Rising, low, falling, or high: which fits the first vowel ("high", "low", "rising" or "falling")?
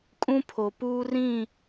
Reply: high